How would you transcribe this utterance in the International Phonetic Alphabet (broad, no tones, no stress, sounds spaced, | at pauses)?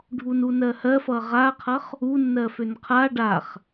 ɖʱ u n u n ɜ h ɜ f ʌ ʁ a qʰ ʌ χ | u nː ɜ f ø n qʰ a ɖ a χ